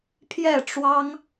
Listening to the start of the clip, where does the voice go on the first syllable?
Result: falling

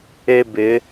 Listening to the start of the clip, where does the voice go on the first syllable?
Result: high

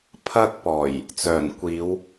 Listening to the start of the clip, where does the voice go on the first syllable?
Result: high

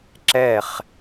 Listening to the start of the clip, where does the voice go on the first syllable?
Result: falling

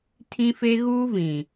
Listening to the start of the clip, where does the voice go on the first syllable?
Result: high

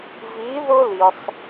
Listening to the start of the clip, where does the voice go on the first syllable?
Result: rising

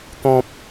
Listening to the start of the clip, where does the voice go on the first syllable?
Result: high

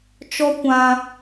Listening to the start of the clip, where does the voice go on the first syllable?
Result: high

